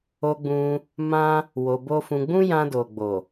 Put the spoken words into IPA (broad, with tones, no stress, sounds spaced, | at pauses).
o˧ ɡ͡b ũ˧ | m ã˦ | w o˧ b o˦ f ũ˧ ɡ͡b ũ˦ j ã˧ d o˨ ɡ͡b o˨